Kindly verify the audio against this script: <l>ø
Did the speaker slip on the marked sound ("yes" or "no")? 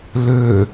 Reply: no